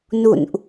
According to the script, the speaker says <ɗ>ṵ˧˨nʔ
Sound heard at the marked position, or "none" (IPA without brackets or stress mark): n